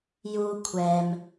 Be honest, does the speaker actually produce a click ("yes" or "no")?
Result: no